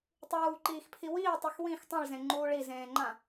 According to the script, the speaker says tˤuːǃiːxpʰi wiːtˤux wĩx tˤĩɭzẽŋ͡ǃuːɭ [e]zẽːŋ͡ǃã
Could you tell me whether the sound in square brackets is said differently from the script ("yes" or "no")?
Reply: yes